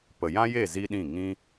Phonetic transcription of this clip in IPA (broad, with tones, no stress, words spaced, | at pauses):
pə˨jã˦je˦˨ zi˦ɗĩ˦˨ ŋĩ˦